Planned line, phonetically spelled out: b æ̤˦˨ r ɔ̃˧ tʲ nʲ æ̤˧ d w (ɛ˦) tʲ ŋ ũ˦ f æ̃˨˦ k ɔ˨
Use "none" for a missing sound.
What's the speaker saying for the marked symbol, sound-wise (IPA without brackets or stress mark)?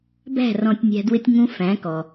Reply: ɪ˦